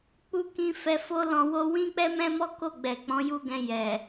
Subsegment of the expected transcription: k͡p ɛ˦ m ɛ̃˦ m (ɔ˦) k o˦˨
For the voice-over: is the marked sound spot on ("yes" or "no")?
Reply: yes